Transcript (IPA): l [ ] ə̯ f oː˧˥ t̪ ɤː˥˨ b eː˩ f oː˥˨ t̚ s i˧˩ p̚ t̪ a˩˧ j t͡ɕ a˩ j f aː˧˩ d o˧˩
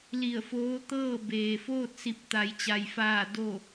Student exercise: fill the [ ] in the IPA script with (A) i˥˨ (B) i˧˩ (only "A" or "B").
B